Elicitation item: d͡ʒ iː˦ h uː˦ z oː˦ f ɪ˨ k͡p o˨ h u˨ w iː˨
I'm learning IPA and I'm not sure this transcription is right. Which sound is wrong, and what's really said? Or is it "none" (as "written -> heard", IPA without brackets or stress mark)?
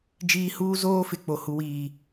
none